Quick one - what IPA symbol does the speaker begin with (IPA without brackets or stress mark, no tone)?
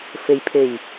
f